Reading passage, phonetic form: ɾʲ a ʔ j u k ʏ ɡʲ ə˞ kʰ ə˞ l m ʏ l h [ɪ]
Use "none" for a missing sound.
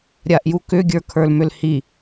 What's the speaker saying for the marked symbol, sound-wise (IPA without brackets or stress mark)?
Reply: i